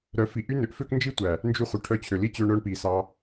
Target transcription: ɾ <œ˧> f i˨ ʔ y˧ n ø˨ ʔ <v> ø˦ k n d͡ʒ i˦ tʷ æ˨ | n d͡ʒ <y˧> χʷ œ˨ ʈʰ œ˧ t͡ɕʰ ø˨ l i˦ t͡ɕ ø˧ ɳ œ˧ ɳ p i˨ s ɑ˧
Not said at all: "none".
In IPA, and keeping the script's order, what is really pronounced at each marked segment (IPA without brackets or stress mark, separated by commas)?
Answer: œ˨˦, f, y˧